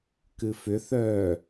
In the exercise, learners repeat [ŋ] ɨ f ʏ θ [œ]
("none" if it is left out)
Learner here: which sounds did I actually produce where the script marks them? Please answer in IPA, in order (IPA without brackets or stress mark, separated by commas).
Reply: k, œ